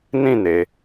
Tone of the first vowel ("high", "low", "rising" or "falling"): falling